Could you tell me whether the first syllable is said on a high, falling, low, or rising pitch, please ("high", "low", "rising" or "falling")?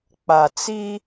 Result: low